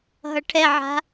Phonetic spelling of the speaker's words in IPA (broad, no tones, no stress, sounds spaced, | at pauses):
ɦ ʌ ʈʰ ɛ ʕ a̤